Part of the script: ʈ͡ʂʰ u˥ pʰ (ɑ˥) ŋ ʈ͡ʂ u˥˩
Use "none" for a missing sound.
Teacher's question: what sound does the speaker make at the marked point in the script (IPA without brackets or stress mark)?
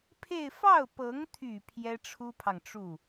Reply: ɑ˨